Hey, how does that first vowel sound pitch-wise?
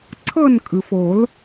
falling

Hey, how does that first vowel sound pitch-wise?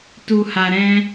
low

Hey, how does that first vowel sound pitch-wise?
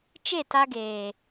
falling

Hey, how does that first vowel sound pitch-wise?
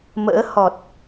rising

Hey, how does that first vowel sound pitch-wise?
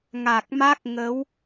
low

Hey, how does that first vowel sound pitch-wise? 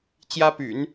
high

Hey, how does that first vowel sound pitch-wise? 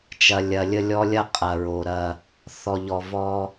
low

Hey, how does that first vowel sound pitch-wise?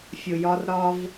low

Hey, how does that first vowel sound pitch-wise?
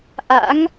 rising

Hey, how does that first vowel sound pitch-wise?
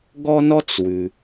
high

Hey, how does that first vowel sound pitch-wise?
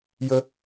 high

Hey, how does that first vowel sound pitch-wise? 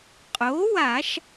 rising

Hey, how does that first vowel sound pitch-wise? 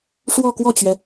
falling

